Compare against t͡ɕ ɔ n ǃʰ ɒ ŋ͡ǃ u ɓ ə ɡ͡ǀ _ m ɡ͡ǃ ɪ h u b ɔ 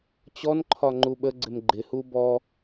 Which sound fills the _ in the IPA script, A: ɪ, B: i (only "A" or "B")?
A